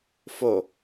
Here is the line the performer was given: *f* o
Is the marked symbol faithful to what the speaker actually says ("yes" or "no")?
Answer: yes